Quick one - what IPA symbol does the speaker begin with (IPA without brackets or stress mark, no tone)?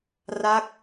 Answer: r